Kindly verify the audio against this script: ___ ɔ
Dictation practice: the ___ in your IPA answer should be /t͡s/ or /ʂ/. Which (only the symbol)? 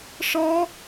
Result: ʂ